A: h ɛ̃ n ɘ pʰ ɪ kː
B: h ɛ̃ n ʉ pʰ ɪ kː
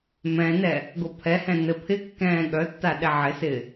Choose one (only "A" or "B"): A